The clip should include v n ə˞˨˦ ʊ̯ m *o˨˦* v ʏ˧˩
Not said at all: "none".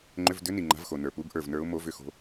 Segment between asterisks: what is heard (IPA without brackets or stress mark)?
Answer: o˨˦